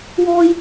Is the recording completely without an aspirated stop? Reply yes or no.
yes